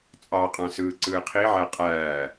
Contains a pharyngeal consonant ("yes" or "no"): yes